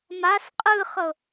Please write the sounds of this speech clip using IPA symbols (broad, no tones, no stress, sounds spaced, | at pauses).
m a s qʼ ɯ χ ɤ